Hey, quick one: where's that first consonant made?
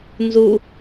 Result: tongue tip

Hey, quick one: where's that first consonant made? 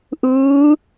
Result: throat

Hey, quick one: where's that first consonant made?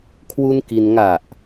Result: velum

